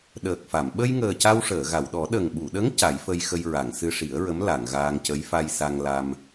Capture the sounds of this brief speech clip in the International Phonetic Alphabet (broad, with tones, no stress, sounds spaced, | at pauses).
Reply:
ɗ əː˨˩ k̚ f a˨˩˨ m ɓ ə˧ j ŋ əː˨˩ c a˧ w ʂ əː˨˩˨ ɣ a˨˩˨ w ɗ ɔ˨˩˦ ɗ ə˨˩ ŋ ɓ u˨˩˨ ɗ ə˧˥ ŋ c a˨˩˦ j f ə˧ j x ə˧ j ɹ a˨˩˨ ŋ s ɨ˧ ʂ i˨˩˦ ə̯ ɹ ə˧˥ m l a˨˩˨ ŋ ɣ aː˧ ŋ c ə˧˥ j f a˧ j s a˧ ŋ l a˧ m